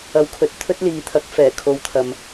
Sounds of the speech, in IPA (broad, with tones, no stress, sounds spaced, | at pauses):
ɐ˨ w kʰ ɵ˨ t̚ t̪ʰ ɵ˥ t̚ l iː˨˧ t̪ʰ ɐ˨˥ k̚ f ɛː˨˩ kʰ o˨˧ w t̪ʰ ɐ˨ m